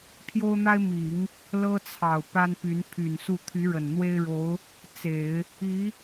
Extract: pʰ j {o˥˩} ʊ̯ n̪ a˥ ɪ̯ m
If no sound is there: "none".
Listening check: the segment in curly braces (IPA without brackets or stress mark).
o˥